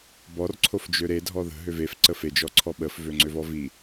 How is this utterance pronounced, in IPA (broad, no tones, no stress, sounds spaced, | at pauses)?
b ɔ r ǀʰ o f d͡ʒ ø ɾ e dʱ ɔ ð ə̤ ɦ ø v e f ǀ ə f e d͡ʒ ɔ ǀʰ ɔ ɓ ə f v ø ŋ͡ǀ ø v ɔ v i